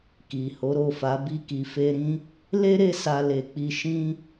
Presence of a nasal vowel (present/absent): present